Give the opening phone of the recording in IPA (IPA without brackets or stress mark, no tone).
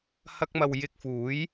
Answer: h